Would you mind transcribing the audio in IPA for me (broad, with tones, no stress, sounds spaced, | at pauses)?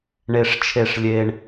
ɳ e˨ ʂ t͡ʃʰ e˨ ʂ lʲ e˨ ɳ